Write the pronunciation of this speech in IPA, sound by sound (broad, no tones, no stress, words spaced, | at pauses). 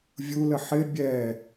vʲulə ħɪ bʲɛ